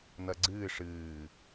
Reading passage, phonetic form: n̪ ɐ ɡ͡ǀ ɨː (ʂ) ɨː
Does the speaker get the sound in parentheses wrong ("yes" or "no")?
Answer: no